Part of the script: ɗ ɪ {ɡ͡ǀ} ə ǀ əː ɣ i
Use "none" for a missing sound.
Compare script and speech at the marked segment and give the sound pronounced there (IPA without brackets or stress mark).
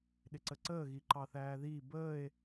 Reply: ǀ